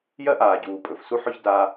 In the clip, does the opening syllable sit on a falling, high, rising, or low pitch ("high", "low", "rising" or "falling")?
falling